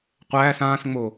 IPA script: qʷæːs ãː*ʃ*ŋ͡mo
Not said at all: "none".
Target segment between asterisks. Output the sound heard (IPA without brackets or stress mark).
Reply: s